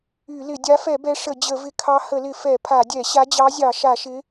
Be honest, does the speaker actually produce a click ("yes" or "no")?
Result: no